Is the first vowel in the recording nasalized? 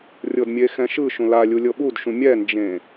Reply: no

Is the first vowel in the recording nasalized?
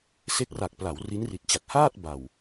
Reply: no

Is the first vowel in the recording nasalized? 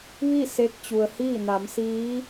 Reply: no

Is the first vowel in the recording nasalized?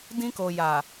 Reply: yes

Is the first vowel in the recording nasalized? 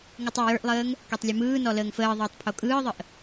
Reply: no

